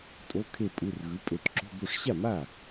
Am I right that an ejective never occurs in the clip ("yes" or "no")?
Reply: no